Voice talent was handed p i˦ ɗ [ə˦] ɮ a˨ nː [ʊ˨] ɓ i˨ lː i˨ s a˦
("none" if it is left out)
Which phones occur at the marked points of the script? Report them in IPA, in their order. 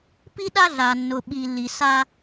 a˦, ʊ˨

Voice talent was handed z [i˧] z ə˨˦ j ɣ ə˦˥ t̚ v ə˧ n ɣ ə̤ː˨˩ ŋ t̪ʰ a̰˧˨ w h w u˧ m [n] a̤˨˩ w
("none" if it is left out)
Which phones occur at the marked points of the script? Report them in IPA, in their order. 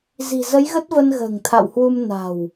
i̤˨˩, n

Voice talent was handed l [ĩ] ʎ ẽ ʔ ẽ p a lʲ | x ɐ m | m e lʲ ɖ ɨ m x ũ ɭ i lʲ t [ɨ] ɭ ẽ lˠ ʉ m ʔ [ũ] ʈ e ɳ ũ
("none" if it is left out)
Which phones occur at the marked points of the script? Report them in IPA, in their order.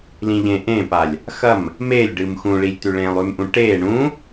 ĩ, ʉ, ũ

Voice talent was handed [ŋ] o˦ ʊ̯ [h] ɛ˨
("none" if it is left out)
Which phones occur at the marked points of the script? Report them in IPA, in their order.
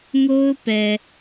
ŋ, p

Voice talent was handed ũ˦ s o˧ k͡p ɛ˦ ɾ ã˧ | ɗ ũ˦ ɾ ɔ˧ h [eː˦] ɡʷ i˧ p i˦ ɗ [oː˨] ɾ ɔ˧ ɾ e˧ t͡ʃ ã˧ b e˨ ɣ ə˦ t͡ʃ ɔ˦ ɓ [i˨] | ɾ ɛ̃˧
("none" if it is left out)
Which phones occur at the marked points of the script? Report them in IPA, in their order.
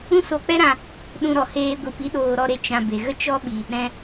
eː˦, oː˧, i˨

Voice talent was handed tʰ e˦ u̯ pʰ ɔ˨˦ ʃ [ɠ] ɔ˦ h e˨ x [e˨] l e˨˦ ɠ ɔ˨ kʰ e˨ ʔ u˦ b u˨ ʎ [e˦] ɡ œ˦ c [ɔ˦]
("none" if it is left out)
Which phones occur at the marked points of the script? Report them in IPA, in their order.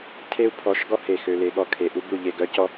ɡ, ø˨, e˦˨, ɔ˦

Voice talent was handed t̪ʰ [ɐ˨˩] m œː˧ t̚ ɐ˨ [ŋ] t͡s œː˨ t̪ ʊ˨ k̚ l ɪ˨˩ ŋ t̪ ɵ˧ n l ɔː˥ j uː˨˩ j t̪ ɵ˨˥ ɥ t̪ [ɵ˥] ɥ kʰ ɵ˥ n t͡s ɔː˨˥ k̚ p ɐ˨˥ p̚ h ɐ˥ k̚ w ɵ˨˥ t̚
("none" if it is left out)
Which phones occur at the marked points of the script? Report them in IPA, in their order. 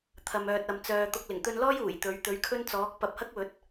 ɐ˧, m, ɵ˨˥

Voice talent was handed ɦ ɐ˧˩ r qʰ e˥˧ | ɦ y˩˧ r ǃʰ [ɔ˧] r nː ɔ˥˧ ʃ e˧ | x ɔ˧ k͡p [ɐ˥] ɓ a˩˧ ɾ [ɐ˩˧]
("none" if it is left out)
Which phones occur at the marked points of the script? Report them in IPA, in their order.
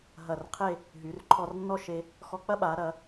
ɔ˧, ɐ˥, ɐ˩˧

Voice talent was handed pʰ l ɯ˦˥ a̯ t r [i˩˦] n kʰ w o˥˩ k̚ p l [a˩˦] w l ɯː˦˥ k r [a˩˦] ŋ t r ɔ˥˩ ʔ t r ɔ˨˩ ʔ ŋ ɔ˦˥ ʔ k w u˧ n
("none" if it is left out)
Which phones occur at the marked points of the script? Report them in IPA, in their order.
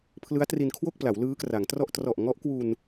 i˧, a˩˦, a˩˦

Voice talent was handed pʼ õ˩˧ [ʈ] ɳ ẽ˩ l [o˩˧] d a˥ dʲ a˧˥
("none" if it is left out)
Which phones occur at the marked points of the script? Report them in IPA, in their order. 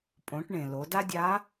ʈ, o˩˧

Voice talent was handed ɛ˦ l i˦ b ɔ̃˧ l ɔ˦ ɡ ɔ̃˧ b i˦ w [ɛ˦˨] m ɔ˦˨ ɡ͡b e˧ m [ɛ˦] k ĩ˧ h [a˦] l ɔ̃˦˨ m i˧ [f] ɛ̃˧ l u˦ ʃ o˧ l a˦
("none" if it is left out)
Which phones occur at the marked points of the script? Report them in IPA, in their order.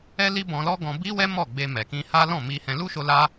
ɛ˦, ɛ˨, a˦, h

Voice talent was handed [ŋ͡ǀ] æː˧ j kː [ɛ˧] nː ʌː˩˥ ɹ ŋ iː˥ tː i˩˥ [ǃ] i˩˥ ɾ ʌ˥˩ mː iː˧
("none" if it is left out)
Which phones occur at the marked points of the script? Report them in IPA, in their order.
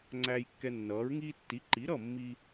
ŋ͡ǀ, ɛ˧, ǃ

